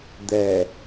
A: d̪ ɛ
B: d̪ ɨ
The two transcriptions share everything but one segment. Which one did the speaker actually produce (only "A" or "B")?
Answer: A